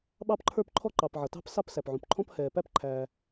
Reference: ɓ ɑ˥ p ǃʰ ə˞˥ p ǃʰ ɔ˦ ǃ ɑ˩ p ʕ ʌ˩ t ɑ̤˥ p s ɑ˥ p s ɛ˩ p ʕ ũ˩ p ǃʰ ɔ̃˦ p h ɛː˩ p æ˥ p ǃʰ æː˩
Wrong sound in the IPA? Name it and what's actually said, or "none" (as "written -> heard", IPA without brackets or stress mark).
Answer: ɛ˩ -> æ˩